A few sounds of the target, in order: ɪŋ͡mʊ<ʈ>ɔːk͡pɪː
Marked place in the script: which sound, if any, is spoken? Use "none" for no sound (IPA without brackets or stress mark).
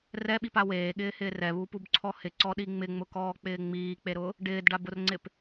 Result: k